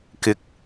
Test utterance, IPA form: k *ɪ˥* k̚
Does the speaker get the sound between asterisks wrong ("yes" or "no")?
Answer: yes